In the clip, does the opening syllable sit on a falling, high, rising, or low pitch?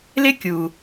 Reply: high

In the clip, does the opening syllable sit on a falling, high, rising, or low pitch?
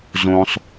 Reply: low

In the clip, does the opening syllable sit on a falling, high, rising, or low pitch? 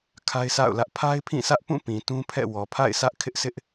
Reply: high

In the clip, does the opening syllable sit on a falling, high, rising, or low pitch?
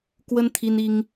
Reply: high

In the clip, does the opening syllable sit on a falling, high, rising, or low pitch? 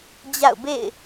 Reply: falling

